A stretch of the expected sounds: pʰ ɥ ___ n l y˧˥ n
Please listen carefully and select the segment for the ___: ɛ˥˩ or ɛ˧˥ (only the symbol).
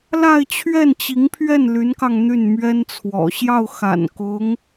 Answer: ɛ˥˩